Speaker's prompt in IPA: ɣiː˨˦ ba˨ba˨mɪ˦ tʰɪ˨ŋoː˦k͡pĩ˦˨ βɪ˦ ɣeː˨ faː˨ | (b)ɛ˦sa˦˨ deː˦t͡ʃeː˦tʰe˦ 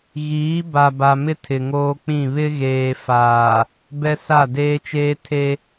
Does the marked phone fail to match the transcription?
no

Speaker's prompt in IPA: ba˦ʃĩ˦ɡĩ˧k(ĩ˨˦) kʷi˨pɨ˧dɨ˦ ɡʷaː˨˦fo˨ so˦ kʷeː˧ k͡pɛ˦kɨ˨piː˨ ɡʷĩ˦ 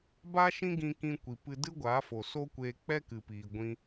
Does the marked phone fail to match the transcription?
yes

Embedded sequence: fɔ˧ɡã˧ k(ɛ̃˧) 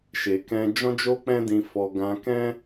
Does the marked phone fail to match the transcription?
yes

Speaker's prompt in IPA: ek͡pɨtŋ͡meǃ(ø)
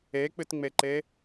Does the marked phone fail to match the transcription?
yes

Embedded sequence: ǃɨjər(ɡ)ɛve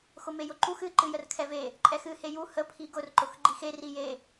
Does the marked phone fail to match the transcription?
yes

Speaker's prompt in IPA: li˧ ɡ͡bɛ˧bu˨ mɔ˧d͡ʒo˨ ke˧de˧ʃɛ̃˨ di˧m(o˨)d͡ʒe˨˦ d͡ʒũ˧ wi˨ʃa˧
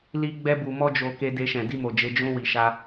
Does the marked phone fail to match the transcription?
no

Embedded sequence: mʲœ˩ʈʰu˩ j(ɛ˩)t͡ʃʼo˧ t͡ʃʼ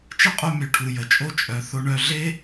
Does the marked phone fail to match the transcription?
yes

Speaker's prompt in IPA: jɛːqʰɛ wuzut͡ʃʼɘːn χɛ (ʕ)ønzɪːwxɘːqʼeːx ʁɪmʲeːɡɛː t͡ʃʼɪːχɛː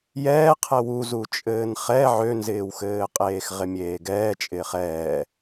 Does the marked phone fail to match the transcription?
no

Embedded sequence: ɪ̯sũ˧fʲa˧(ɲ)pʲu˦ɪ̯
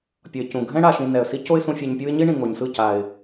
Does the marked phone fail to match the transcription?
no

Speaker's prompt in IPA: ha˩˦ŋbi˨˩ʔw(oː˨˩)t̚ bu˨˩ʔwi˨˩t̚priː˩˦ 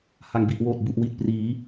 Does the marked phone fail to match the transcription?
no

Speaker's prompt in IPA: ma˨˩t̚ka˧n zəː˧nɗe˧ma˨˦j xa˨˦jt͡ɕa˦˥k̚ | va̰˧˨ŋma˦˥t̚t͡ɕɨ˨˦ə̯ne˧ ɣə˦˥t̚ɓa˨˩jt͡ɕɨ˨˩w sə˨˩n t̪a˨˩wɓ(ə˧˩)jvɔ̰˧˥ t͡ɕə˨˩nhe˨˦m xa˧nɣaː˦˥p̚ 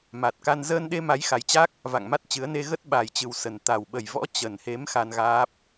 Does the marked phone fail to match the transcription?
yes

